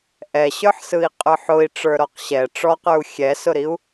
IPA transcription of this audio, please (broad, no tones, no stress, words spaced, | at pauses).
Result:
ʔɛɕə˞ħsɯi̯ qʼə˞ħʊi̯ ʈ͡ʂə˞ɾɔqɕɛ ʈ͡ʂɔqə˞u̯ xʲɛsʊɾiu̯